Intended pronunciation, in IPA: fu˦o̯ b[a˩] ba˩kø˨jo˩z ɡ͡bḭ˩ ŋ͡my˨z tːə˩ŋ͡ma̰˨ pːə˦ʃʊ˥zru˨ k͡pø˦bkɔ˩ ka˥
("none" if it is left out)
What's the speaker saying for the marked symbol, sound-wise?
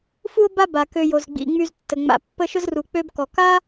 a˦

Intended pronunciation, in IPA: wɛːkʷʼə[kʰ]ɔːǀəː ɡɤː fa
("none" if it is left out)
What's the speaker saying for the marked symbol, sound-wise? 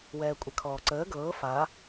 kʰ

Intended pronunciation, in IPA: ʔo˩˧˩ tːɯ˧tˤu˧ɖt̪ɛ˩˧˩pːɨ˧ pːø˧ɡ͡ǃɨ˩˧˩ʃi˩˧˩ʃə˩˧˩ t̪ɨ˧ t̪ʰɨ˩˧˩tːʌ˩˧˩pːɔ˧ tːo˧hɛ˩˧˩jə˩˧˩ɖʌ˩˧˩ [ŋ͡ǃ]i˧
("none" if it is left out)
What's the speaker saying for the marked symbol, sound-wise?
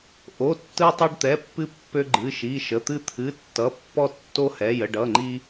ŋ͡ǃ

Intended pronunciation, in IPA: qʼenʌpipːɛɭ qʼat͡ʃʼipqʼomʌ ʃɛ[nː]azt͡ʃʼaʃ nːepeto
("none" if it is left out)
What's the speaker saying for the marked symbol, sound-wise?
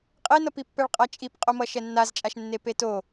nː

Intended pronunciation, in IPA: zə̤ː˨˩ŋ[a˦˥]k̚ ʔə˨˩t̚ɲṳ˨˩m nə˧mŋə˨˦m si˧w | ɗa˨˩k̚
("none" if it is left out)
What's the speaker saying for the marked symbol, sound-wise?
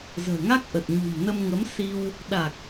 a˦˥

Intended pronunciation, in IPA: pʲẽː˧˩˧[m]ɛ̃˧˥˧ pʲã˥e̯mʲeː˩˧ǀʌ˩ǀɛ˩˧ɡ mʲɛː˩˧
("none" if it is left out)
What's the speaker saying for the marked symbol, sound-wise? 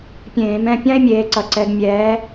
m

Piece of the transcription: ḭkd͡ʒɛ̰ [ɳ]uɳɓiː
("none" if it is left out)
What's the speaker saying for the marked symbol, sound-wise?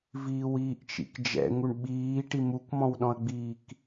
ŋ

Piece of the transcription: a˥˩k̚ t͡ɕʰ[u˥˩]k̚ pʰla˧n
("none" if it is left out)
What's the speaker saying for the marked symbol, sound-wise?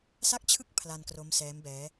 ɯ˥˩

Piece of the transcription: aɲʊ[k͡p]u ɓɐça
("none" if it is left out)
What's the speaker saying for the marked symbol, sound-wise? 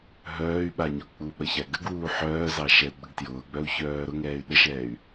k͡p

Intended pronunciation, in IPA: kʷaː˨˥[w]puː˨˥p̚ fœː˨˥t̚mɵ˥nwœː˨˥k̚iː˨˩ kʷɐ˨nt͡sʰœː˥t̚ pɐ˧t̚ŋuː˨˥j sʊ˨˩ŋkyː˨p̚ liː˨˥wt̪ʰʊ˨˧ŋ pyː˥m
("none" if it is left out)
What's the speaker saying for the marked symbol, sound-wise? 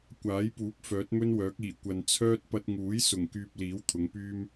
j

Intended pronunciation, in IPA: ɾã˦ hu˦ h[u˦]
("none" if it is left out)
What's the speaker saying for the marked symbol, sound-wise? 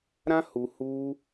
u˦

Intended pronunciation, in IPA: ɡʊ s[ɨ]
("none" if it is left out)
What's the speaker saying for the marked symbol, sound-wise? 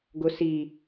i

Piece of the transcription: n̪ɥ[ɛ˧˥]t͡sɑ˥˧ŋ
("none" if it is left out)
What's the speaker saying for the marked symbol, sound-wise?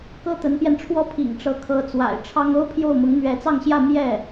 ɛ˧˥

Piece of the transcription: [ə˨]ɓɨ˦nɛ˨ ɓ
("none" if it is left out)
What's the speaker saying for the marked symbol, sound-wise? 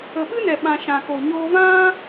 ə˨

